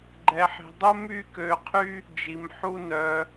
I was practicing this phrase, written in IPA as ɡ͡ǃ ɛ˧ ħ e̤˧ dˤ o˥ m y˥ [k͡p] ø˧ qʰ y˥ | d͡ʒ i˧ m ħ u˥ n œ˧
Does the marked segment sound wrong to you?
yes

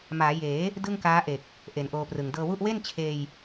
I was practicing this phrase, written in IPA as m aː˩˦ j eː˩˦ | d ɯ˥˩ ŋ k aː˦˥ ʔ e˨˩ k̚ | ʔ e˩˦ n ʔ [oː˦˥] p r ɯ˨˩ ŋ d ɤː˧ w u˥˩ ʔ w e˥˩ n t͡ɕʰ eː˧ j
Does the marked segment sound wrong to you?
yes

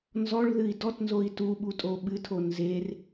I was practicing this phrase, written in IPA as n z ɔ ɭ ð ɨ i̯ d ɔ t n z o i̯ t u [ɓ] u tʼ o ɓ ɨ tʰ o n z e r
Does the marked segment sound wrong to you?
no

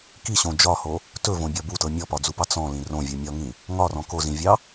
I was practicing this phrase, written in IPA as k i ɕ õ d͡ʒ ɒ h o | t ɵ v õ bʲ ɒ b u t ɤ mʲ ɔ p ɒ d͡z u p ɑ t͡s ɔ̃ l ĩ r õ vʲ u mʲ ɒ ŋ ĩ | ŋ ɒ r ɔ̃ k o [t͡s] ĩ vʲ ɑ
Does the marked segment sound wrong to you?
yes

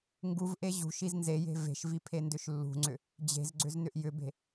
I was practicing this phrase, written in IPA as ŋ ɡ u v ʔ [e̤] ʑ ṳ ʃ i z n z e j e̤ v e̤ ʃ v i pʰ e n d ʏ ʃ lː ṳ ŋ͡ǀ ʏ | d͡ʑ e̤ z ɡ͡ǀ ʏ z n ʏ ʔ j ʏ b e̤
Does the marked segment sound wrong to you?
yes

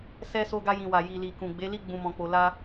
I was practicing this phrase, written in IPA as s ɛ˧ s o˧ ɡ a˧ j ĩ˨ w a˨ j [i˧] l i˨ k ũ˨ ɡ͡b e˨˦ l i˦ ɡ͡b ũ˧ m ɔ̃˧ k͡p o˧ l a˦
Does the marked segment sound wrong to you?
yes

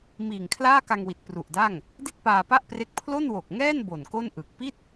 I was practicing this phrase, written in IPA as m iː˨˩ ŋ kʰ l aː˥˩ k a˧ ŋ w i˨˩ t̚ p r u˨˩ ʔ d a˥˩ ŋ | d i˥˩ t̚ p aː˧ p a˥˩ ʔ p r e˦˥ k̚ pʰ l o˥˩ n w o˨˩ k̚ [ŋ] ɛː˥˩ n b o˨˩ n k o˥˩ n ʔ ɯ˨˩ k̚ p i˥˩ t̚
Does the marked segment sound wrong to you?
no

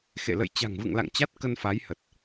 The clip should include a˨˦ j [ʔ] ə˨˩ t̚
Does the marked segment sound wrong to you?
yes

